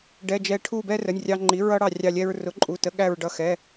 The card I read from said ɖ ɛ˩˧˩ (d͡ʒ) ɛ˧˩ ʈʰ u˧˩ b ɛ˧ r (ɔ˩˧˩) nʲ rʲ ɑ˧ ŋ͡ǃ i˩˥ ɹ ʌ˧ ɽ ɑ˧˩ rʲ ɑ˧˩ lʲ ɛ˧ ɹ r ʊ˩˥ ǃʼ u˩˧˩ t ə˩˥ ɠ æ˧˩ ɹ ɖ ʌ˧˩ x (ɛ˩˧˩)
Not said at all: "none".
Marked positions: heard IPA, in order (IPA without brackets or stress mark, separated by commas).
d͡ʒ, ə˩˧˩, ɛ˩˧˩